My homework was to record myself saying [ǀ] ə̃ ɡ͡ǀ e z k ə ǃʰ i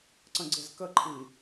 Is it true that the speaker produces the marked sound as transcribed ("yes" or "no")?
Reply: yes